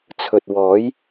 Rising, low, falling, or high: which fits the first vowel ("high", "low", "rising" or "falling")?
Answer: low